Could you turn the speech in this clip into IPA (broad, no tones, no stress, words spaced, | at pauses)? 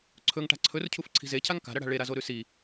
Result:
ǀʰɵŋʈa̤ ǀʰɵrcʰuf ǀʰi̤zecʰaŋ ka̤ɾɐɽa̤ ɭeɾazo ɾʉsi